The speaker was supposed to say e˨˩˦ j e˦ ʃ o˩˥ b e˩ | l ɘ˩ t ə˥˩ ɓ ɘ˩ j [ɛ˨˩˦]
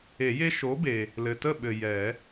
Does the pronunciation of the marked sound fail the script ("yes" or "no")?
no